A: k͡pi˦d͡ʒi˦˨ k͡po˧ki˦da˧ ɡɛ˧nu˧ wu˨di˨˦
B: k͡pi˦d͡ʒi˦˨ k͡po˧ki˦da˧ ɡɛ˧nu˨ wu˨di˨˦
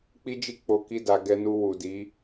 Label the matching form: A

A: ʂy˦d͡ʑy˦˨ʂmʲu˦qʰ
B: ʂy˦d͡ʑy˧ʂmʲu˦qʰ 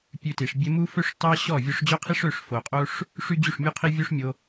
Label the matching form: A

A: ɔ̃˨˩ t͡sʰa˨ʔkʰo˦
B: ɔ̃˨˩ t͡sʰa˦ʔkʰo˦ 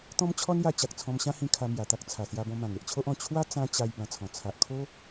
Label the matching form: A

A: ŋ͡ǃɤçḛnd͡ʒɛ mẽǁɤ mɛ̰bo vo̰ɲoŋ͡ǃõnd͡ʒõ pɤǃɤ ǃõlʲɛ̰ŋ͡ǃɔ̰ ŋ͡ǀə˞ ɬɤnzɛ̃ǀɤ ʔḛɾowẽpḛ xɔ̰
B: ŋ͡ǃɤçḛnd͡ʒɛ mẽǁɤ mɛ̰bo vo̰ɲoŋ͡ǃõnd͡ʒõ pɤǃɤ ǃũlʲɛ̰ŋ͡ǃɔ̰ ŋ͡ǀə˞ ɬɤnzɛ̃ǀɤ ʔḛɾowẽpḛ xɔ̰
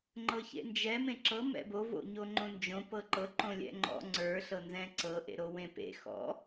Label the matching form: A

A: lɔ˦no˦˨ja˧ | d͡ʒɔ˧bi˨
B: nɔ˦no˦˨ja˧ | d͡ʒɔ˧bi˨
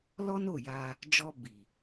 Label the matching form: A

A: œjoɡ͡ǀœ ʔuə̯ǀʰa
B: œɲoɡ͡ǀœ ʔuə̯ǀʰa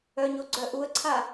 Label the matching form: B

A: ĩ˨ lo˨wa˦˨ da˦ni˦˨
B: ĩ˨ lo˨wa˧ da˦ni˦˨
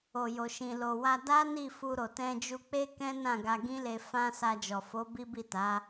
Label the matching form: B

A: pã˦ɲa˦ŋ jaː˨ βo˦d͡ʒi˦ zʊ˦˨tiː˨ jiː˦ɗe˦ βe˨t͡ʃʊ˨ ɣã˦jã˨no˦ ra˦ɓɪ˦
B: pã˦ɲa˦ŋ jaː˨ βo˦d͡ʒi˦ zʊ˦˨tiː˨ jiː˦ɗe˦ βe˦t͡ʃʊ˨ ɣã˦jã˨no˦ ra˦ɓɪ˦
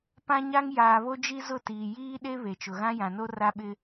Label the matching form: A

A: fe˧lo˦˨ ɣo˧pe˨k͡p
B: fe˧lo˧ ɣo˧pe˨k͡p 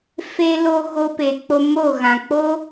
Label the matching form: B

